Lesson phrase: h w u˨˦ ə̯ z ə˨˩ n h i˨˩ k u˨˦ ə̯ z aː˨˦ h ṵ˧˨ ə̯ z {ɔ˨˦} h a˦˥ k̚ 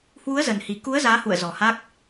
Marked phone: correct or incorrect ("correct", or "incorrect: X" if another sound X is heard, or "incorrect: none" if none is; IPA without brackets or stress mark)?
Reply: incorrect: ɔ˨˩